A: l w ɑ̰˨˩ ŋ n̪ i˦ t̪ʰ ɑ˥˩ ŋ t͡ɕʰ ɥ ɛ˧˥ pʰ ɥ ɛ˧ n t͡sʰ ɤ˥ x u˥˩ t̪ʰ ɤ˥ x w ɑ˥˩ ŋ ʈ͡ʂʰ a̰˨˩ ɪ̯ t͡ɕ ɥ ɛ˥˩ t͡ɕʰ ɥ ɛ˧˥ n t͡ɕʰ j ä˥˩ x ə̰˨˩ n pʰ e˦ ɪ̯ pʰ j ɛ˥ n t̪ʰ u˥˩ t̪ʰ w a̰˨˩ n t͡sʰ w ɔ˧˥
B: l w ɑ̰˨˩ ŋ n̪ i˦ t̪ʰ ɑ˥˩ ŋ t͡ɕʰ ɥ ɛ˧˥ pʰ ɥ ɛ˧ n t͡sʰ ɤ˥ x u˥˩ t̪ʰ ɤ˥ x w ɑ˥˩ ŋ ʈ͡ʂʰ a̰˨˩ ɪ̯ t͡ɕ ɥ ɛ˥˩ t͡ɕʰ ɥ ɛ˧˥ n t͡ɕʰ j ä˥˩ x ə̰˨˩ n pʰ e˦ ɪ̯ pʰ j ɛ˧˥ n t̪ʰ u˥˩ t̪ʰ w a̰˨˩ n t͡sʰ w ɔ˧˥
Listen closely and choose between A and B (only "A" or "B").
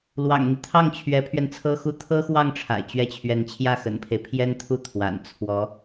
A